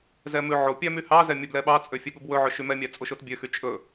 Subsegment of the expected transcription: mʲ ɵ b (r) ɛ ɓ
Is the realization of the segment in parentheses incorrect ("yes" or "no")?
yes